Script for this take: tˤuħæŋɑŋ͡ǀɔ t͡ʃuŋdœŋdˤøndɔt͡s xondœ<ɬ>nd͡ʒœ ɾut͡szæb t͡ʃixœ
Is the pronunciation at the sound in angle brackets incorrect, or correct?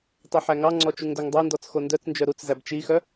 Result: incorrect